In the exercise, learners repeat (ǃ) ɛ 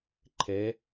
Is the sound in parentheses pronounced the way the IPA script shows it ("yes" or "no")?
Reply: no